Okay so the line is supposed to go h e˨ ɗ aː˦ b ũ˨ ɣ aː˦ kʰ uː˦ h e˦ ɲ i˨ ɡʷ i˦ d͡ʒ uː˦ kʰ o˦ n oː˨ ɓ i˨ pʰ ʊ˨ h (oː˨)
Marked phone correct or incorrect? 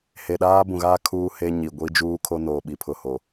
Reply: incorrect